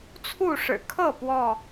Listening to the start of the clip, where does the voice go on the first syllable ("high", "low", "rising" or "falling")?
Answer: falling